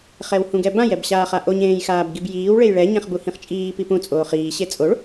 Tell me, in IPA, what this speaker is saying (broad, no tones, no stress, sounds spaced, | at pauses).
χ ɛ w h ũ ɡ ɛ b ã j ɛ b ɕ aː χ a ʔ o ɲ ẽː j x aː b ɡ i b j iː w ɭ e j ɭ ɛ ɲ ɛ̃ χ b u h ĩ χ t͡ʃʼ iː p i p ũ t͡sʼ oː χ iː ɕ e t͡sʼ o ɭ